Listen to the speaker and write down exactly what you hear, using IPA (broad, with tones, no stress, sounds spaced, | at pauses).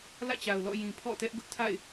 l ä̰˦˨ t͡ɕ a˨ ʊ̯ l ɔ̰˦˨ j ĩ˨ pʰ ɔ̰˦˨ t ɛ˦ ʔ ɡ ʊ˦ ʔ tʰ a̰˦˨ ɪ̯